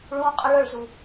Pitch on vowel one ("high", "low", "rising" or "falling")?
high